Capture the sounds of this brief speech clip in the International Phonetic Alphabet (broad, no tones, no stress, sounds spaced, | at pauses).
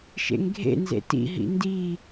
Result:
ʃ ḛ ŋ ɡʱ ḛ n z ḛ t ḭ ɦ ḭ n d i